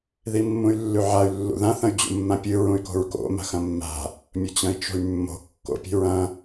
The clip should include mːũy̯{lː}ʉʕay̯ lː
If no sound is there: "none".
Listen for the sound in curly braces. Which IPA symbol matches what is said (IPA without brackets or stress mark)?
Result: lː